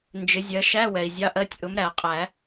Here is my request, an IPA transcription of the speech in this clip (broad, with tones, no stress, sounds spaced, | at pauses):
n d͡ʒ ɪ˨˥ zʲ ɜ˨˥ ʃ æ˧˥˧ w ɛ˩ i̯ zʲ ɑ˧˥˧ ʔ ɜ˧˥˧ tʲ ʔ ʊ˨˥ m ɾ æ˨˩˦ qʼ æ˨˩˦